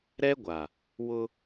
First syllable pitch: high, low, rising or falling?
high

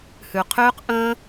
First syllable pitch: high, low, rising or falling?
low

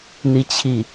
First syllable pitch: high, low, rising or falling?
falling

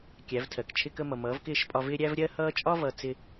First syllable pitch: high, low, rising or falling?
rising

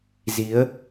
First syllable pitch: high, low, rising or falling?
rising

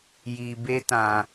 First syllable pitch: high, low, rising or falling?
low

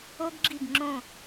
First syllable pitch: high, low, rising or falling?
high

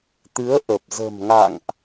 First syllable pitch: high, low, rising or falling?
rising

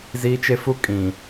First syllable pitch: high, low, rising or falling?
high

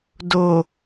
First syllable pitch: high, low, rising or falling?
low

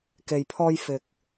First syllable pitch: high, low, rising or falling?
low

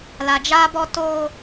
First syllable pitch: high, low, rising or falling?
low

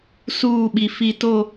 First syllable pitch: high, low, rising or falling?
falling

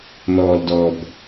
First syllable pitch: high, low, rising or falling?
low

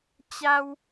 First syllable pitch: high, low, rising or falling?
high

